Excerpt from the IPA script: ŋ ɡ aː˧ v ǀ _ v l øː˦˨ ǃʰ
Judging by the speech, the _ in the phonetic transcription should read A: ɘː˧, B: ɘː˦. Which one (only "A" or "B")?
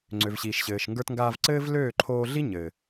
B